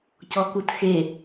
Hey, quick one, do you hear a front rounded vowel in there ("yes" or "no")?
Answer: no